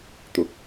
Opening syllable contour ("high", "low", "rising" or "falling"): rising